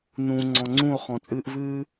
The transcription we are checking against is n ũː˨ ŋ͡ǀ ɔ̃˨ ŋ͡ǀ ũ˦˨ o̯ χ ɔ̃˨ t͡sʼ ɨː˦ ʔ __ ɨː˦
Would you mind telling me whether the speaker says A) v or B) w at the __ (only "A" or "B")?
A